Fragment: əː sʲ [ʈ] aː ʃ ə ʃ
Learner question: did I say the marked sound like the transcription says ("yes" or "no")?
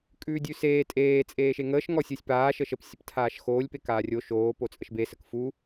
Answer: no